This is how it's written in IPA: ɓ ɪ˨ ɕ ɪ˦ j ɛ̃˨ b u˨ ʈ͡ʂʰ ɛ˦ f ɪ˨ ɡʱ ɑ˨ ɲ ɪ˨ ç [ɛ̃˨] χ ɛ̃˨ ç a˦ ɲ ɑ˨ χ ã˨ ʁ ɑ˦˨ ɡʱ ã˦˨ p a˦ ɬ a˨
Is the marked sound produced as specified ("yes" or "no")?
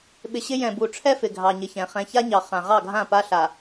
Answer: yes